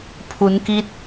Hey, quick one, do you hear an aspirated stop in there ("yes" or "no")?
yes